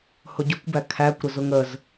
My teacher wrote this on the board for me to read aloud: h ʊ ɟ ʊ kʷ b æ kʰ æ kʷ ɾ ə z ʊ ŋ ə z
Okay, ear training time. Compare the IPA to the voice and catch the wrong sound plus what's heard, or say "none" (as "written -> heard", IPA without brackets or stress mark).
none